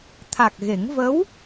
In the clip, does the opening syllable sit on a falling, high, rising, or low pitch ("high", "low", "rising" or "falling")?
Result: low